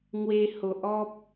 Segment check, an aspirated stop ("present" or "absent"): absent